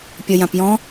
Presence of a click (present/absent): absent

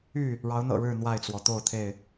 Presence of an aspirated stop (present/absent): present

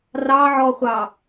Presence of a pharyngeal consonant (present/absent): present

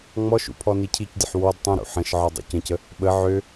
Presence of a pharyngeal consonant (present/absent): present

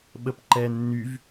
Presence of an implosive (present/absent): present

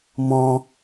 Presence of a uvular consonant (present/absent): absent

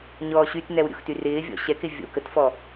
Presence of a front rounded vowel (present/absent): present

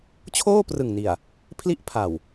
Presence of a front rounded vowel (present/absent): absent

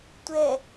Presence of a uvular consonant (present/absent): absent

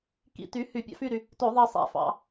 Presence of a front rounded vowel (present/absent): present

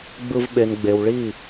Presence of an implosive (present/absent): present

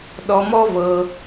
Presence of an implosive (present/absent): present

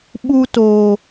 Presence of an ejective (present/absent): absent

